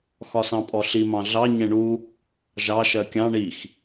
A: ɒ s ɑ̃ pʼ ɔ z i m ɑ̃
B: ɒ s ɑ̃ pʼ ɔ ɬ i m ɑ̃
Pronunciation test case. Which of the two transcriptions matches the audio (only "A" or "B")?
B